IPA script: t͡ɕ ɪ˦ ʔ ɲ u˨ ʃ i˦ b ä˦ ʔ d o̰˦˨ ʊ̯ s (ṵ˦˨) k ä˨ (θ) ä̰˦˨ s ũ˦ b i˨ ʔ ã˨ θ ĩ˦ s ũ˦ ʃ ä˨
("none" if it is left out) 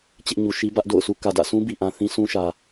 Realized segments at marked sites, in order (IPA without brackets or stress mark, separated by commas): u˦, d